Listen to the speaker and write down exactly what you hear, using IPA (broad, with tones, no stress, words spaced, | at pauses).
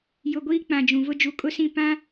jʊ˨ ɡʷiː˦k͡pã˨d͡ʒũ˨vʊ˦ d͡ʒu˨kʼʊ˦sĩ˦˨ pã˦